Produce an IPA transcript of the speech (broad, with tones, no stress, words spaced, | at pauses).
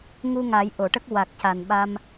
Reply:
ŋu˧ŋa˨˩˦j ʔo˨˩˨ʈə˦˥k̚ wa˨˩k̚ca˨˩nɓa˧m